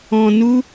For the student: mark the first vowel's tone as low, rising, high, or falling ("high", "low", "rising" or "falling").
low